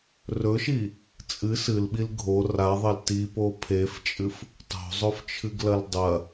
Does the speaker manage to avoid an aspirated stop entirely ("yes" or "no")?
no